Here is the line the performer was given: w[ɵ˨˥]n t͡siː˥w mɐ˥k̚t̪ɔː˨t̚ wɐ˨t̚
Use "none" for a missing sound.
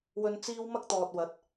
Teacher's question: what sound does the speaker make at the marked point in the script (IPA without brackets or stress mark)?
ɵ˧